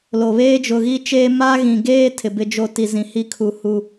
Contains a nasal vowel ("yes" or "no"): yes